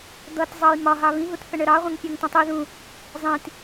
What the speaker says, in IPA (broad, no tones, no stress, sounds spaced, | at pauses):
d̪ ʌ t zˤ ʌ j m ɒ ɦ ɑ β ĩ ɦ u t θ ə ɳ ə ɾ ɑ ʁʷ ə̃ ŋ pʲ ɔ ŋ t ə̃ tˤ i ð ũ | zˤ ĩ t